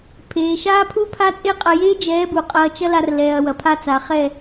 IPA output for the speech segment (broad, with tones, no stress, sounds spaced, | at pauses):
pʰ eː˨ ʃ aː˦ pʰ u˦ pʰ a˦ t͡sʼ e˦ qʼ ɐ˧ j eː˦ d͡ʒ ɛː˨˦ b u˨ qʼ ɐː˦ t͡ʃ ɐ˦ l a˧ r l ɛː˨ ɐ̯ w ɐ˨ pʰ a˧ t͡s a˨ χ ɛ˦˨